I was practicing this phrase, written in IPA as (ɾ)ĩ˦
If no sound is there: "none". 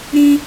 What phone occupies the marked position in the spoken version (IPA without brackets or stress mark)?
ɾ